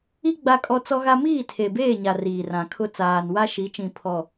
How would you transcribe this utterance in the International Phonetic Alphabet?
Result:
i˦ ɡ͡b a˦ kʼ ɔ˦ t͡s ɔ˦ ɣ a˦ m iː˦˨ tʰ e˨ b eː˦˨ ɲ a˨ r iː˨ r ã˨ kʰ ʊ˦ t͡s aː˨ n w a˦ ʃ i˨˦ t͡ʃ ĩ˨ pʰ ɔ˨

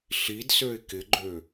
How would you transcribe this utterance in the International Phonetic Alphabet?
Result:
ɬ i d s ø ɪ̯ k ɪ ɡ͡ǃ ø

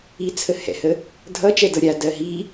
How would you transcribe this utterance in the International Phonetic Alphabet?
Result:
i t͡sʰ ə h ɛ̰ h ə | dʱ ʌ t͡ʃ ɛ d ɤ ɾʲ a d ɜ ɦ i

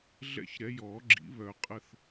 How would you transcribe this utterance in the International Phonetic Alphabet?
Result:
ɮ ɛ̰˦˥ ç ɾ ɛ˨˦ j ɔː˨˩˦ ɡ͡ǁ ḭ˨˩˦ β œ˨˩˦ qʼ ə˦˨ θ

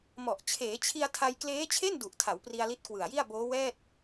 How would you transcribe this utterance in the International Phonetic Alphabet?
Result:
m ɔ˨˩ ʔ t͡ɕʰ eː˩˦ t͡ɕʰ i˧ a̯ tʰ a˧ j k l eː˦˥ t͡ɕʰ e˥˩ n d u˨˩ ʔ tʰ a˩˦ w p r i˧ a̯ l i˦˥ t̚ k w ɯ˨˩ a̯ j i˥˩ a̯ b oː˦˥ w ɛː˥˩ t̚

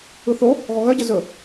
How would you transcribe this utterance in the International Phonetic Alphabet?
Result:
ɯ θ o | ɣ ɔ ɣ œ ɟ ə z ɵ

